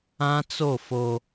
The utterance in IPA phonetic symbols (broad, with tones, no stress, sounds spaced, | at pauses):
ã˦ t͡s o˦˨ f o˦